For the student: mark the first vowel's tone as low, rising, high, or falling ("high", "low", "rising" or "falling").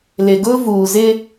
low